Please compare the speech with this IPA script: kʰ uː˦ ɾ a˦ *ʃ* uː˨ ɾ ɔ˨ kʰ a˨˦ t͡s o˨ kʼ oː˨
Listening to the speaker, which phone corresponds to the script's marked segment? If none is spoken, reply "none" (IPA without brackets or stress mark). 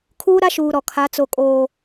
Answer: ʃ